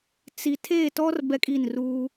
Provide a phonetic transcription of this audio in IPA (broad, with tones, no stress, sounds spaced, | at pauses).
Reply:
t͡s i˨ tʰ e˦˨ t ɔ˦ r b ɛ˦ kʼ i˦˨ n r uː˦